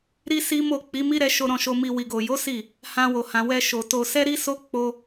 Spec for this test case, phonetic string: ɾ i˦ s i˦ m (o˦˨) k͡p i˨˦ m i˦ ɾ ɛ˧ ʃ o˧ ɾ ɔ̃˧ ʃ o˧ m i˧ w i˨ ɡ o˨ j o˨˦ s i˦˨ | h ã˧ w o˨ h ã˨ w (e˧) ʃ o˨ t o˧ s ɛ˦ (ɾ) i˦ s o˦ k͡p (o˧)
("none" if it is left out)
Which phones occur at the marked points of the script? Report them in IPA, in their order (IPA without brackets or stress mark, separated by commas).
o˦˨, ɛ˧, ɾ, o˧